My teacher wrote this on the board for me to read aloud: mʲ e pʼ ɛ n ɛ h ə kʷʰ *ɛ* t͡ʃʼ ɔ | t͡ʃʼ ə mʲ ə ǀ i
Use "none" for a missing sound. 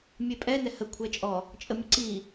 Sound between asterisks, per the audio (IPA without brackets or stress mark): ɛ